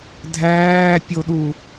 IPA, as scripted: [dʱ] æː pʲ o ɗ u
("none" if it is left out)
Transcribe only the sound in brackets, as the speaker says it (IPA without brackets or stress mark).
dʱ